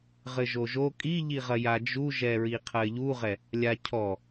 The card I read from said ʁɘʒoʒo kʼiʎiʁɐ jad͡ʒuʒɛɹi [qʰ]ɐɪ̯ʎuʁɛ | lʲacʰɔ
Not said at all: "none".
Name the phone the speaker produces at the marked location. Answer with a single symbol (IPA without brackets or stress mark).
qʰ